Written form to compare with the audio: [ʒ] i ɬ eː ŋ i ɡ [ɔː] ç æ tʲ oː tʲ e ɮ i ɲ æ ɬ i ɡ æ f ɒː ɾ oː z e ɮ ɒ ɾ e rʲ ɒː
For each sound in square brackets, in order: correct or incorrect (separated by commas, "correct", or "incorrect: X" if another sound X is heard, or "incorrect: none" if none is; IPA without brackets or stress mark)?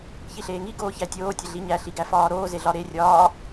incorrect: ç, incorrect: oː